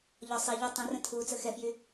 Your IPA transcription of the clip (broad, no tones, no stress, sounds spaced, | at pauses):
ʎ ɒ sˤ i ʎ o tˤ ɐ̃ r ə̃ tʰ uː t͡s ə x ɛ f j y